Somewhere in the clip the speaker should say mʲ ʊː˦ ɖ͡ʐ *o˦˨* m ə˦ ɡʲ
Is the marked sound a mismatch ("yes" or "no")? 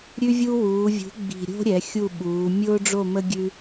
no